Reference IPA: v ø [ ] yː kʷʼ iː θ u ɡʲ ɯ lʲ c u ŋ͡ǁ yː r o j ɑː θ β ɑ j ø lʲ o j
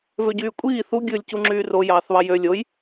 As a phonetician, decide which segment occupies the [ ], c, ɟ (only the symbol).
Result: ɟ